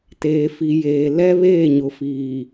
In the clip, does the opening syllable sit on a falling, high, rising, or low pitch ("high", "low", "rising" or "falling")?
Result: low